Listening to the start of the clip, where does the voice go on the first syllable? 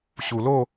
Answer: low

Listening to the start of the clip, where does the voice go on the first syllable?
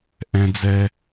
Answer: high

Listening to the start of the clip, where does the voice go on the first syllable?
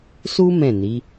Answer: high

